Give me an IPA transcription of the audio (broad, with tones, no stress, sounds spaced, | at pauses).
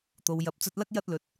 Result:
t̪ o˨ w j ɐ˨˥ p̚ t͡s ɵ˧ t̚ l ɐ˥ k̚ j ɐ˧ t̚ l ɵ˨ t̚